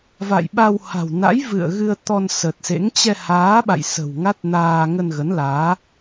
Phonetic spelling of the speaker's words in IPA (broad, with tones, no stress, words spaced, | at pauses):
va̰˧˨jɓa˧w ha̤˨˩wna̰˧˥jvɨ̰˧˨ə̯ ɣɨ˧ə̯ t̪ɔ˧nsə˨˩t̚sḛ˧˥ŋ t͡ɕɛ˧haː˨˦ɓa̰˧˨j sə̤˨˩wŋa˦˥t̚naː˧ ŋə˧nɣə˨˦nlaː˨˦